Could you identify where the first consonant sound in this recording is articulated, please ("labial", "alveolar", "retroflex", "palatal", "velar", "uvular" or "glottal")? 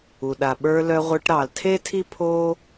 alveolar